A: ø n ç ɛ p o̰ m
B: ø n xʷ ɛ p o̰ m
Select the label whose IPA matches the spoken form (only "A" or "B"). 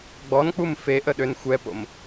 B